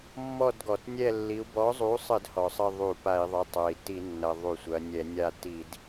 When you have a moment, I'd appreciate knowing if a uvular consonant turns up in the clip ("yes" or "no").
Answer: no